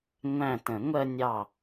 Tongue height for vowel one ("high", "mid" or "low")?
low